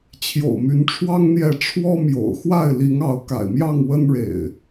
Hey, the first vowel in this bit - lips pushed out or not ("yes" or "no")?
yes